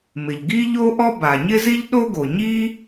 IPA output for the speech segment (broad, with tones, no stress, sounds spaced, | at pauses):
m ɪ˩ ʎ ɡ i˥ ʎ o˥ ʔ ɔ˥ b a˩ ɲ ɪ˥ z i˥ ʎ ɗ o˥ ɡ o˩ ɲ i˥